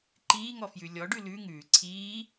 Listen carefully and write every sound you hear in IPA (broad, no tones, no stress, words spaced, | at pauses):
ǃiːŋɔfjʉ lʲɔɖʉ lʉ ŋʉː ǀʰiː